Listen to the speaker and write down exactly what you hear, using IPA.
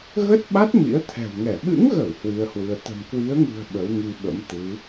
ɣ ə˦˥ t̚ ɓ a˦˥ t̚ m ḭ˧˥ ə̯ t̪ʰ ɛ̤˨˩ w ŋ ɛ˧˩ ɓ ɨ̰˧˥ ŋ ɣ ə˧˩ w h w i˧ ə̯ h w ɨ˧ ə̯ t̪ ə̤˨˩ m k w i˨˦ ə̯ ŋ ɨ̤˨˩ ə̯ ɓ ə˨˦ w ŋ i˧ ɓ ə̰˧˥ m t̪ ɨ˨˦

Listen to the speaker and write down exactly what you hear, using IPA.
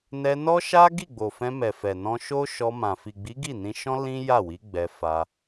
n ɛ˧ n ɔ˦ ʃ a˦ ɡ i˦˨ ɡ͡b o˨ f ɛ̃˧ m ɛ˨ f ɛ˨ n ɔ̃˧ ʃ o˦ ʃ ɔ˧ m ã˨ f i˨ ɡ͡b i˨˦ ɡ i˦˨ n ĩ˧ ʃ ɔ̃˦ l ĩ˦ j a˦˨ w i˨˦ ɡ͡b ɛ˧ f a˧

